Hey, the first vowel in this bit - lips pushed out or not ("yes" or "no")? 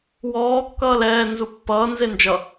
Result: yes